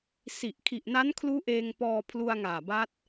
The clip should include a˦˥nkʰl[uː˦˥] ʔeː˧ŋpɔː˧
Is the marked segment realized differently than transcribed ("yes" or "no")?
no